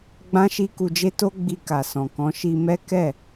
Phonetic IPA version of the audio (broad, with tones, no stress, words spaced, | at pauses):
ɡ͡bã˦ʃi˦ku˧d͡ʒe˦ to˦ɡ͡bi˧ka˨ sɔ̃˨kɔ̃˨˦ ʃi˧mɛ˦ kɛ˦˨